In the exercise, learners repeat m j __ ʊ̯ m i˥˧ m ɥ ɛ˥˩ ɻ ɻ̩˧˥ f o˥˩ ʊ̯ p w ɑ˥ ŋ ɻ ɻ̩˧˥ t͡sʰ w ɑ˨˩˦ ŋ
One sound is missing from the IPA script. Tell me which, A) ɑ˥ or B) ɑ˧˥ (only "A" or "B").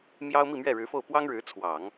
A